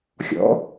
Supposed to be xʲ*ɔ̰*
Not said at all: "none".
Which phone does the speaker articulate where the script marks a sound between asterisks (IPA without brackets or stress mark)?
ɔ̰